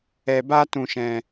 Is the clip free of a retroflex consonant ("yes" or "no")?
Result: yes